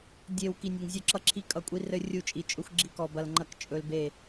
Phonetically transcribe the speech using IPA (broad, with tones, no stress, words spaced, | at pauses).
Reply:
dʲe˧w ki˧nʲʌ˧ŋzʲɵ˥˨ǁʌ˥ ǁʰi˥kʼʌ˥˨kʷʼi˥ rɘ˥ rʲu˥˨t͡ʃʼi˧t͡ʃʼɵ˥xʷ ɡ͡ǁi˥kɔ˧bɐ˧lŋ͡ǃɐ˥˨k t͡ʃʼɵ˧lbe˥˨